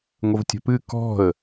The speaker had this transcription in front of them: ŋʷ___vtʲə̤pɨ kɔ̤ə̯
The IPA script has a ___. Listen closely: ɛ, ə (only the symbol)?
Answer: ə